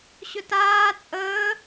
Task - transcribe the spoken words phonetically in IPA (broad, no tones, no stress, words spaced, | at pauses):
ɕɵtaː t͡sʼəː